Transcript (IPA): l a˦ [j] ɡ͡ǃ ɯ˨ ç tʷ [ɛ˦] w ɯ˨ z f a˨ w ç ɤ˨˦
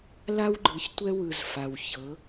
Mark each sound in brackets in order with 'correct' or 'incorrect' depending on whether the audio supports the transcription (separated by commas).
incorrect, correct